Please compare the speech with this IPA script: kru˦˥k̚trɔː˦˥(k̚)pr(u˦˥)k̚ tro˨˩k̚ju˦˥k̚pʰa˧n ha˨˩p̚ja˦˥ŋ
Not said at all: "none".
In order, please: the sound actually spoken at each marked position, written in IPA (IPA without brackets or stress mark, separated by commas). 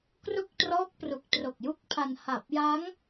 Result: k̚, u˨˩